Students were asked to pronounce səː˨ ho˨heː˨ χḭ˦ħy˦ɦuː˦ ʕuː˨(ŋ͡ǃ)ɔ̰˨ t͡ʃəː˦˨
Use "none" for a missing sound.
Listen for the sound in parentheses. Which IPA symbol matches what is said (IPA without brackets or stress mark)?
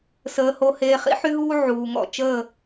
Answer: ŋ